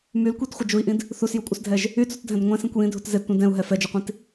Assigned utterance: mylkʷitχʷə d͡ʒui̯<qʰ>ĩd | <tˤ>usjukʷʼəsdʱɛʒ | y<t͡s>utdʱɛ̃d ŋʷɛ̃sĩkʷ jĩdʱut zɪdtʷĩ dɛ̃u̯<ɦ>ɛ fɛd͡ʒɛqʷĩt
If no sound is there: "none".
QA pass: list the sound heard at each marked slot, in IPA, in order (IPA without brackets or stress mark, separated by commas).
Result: ʔ, θ, t͡s, ɦ